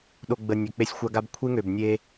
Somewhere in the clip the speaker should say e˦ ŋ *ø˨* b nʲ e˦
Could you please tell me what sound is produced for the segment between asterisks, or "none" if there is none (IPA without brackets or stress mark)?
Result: ø˨